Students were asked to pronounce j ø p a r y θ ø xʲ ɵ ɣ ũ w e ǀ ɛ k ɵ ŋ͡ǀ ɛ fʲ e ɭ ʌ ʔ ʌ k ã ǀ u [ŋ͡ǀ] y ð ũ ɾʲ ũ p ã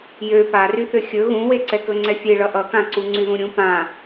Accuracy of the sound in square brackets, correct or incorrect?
correct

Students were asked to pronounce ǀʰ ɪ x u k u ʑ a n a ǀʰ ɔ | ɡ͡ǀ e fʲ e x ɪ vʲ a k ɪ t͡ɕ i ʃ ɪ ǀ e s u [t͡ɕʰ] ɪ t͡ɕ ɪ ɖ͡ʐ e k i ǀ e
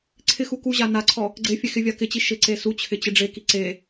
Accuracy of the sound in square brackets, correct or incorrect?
correct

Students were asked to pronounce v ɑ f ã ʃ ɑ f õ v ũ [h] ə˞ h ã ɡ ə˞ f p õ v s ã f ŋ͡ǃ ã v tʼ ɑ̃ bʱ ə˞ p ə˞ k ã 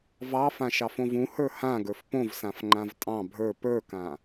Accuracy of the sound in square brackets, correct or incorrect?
correct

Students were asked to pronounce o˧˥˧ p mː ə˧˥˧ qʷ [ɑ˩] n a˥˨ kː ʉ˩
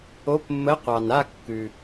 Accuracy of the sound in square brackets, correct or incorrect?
correct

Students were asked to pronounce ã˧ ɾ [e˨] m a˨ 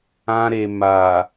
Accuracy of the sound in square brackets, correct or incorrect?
correct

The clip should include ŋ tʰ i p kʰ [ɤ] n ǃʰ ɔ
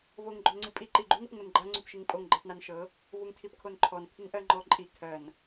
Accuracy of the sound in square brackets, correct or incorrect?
incorrect: o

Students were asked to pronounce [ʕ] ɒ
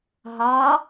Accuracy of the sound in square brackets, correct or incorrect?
incorrect: ɦ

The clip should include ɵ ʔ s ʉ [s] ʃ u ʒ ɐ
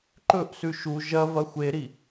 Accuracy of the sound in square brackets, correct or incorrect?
incorrect: none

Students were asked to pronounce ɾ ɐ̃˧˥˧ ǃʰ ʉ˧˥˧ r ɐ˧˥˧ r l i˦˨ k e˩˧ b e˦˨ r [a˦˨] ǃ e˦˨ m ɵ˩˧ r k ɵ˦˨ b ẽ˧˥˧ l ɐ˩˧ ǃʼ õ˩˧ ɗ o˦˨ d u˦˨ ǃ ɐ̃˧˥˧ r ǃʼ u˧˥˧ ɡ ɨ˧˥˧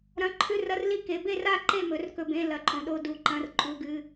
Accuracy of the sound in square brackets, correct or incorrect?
correct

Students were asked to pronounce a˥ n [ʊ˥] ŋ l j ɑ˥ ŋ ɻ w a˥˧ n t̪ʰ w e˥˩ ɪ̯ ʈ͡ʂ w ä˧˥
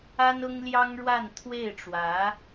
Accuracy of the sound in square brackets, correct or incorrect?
correct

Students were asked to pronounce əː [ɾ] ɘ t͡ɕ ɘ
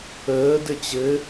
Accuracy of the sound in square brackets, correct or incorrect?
incorrect: d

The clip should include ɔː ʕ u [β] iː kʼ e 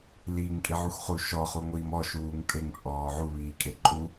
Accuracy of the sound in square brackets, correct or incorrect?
correct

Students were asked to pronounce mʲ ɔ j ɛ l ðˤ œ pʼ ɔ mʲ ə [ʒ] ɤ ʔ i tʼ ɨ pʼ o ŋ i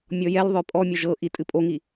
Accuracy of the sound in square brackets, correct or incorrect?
correct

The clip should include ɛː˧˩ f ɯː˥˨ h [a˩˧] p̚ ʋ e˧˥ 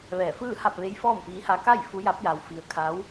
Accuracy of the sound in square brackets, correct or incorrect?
incorrect: a˥˨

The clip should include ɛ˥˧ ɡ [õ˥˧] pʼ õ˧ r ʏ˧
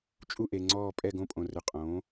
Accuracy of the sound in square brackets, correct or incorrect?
correct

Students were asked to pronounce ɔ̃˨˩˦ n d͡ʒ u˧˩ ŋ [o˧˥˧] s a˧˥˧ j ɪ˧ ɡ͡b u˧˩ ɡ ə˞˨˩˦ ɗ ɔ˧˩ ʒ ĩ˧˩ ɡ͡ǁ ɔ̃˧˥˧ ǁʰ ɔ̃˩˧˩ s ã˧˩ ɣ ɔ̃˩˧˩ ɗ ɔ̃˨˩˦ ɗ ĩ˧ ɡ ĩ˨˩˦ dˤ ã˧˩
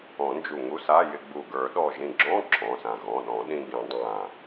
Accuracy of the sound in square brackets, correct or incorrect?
incorrect: u˧˥˧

